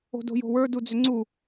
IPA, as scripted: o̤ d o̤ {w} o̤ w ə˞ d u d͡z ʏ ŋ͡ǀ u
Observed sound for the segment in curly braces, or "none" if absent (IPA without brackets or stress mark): j